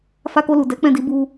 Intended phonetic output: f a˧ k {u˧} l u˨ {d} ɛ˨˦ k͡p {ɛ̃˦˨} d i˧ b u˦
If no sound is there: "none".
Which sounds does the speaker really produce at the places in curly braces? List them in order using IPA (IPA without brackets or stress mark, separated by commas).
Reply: o˧, d, ɛ̃˦˨